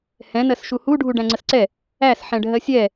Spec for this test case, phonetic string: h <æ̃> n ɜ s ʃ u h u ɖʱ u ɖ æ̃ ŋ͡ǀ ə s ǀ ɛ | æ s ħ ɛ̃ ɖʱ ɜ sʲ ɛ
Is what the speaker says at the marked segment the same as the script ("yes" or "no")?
no